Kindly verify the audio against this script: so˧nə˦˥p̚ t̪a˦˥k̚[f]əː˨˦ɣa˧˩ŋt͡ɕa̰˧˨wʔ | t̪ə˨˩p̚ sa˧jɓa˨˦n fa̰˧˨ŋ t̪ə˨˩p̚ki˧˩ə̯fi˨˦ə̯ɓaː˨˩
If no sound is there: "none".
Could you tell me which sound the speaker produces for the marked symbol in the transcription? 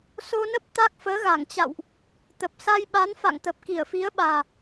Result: f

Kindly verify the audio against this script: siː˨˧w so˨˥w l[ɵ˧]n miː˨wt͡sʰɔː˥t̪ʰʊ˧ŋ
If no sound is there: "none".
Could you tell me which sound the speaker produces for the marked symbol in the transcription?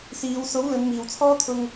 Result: ɵ˨˧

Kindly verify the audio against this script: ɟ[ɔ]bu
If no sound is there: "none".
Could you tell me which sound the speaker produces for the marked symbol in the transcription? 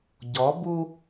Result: ɔ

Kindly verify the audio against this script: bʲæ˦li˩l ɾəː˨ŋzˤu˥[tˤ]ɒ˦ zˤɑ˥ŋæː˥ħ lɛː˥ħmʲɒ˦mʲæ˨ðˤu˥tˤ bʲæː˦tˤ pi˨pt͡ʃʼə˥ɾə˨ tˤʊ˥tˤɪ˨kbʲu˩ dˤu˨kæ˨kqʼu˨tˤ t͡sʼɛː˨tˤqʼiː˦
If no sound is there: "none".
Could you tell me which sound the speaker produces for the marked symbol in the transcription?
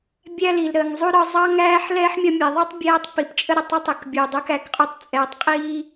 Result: ɾ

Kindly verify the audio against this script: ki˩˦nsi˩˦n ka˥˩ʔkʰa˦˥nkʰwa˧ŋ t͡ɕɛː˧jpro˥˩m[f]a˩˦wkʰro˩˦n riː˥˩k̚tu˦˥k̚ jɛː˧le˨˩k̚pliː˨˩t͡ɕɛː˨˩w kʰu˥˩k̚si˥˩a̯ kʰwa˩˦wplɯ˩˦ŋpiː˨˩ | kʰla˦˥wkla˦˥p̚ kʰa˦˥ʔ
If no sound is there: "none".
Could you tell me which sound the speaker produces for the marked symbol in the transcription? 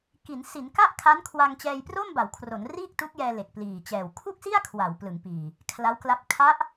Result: b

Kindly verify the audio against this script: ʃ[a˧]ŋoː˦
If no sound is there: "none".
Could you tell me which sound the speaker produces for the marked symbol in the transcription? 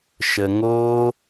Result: ə˧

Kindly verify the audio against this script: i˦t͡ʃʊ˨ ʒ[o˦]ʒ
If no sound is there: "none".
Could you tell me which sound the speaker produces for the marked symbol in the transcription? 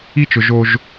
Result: o˦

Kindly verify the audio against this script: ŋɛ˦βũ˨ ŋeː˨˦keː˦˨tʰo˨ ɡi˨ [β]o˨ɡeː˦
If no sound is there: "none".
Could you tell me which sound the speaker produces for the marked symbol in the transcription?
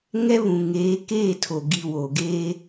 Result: w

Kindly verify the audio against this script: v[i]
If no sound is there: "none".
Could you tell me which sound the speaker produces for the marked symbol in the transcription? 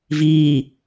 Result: iː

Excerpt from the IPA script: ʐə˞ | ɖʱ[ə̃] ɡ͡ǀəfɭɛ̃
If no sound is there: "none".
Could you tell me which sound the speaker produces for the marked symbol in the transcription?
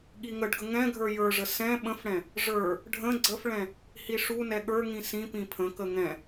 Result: ə̃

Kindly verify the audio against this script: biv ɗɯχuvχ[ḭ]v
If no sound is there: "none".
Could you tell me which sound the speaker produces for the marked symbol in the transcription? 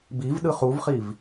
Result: i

